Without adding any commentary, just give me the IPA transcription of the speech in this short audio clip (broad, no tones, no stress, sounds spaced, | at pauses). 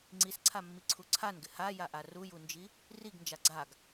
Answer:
ŋ͡ǀ i s ǀʰ a mː i ǀʰ u ǀʰ a n ɡ ɪ h a j a ʔ a r u j u n d͡ʒ i | r i ɡ n d͡ʒ a ɡ͡ǀ a ɡ